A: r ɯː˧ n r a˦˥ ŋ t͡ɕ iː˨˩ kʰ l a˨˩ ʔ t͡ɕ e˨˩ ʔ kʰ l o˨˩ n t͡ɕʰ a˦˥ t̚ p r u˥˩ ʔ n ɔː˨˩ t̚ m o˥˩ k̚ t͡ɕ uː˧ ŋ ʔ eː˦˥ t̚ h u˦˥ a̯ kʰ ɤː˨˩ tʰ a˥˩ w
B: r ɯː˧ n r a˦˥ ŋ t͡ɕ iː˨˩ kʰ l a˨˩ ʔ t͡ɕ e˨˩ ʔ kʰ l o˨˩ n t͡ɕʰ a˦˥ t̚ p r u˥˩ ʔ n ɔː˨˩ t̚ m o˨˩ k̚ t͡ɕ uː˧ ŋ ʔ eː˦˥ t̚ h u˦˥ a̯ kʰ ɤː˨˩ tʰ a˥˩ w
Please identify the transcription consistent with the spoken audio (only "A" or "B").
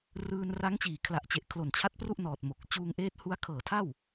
B